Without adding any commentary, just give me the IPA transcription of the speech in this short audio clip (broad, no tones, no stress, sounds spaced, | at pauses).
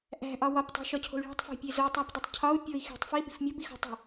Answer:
ʔ æ̤ ʔ ɒ w ɒ p tˤ o̤ ʃ ɒ cʰ o̤ y̯ ɭ æ̤ tˤ f æ̤ pʲ e z o tˤ æ p dˤ e tˤ cʰ ɒ u̯ pʲ o i̯ x i̤ tˤ f i b i̤ f mʲ o b i x o̤ tˤ o̤